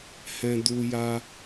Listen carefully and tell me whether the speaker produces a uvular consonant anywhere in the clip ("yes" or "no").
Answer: no